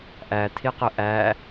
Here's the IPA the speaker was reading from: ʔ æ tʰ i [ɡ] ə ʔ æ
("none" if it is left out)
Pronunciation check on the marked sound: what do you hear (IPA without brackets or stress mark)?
q